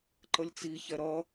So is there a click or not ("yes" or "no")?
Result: yes